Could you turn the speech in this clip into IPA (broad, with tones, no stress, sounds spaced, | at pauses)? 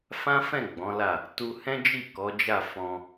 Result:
f ã˦ f ɛ̃˦˨ ɡ͡b ɔ̃˨˦ l a˦˨ | t u˧ h ɛ̃˦ d͡ʒ i˦˨ k ɔ˨˦ d͡ʒ a˦˨ f ɔ̃˧